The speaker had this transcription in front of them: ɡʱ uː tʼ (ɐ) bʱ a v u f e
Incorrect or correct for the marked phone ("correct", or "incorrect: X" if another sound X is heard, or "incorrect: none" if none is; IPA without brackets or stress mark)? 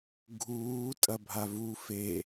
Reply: correct